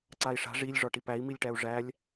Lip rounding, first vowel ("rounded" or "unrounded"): unrounded